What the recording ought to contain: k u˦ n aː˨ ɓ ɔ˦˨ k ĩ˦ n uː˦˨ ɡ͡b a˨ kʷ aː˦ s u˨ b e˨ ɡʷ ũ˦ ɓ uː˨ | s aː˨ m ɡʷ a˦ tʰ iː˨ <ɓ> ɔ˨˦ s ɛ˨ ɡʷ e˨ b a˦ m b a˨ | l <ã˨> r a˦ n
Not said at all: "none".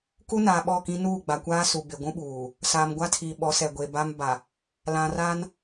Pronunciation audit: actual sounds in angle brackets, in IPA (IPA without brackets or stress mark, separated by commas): ɓ, ã˨